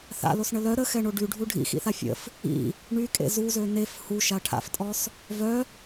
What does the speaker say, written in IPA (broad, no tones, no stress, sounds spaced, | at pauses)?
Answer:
θ a̰ l o s ɳ ə l œ ɾ ə x ɛ ɳ o ɖ y ɖʱ u ɖʱ ḭ x ḭ θ a fʲ ə̰ f | ḭ | ɳ y kʼ ḛ z u z ø n e f h u ʃ a ʈʰ a̰ f tʼ ɔ s | v œ